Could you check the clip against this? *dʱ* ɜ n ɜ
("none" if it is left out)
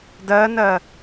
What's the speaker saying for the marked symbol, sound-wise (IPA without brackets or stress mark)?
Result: d